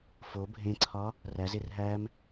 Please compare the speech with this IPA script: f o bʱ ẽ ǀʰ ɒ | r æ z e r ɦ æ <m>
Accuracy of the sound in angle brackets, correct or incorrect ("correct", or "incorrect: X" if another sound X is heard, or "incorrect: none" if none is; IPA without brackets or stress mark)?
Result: correct